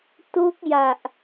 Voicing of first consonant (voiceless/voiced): voiceless